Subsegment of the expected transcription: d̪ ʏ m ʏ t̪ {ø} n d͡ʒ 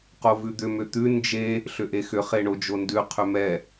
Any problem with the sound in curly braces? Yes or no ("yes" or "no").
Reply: yes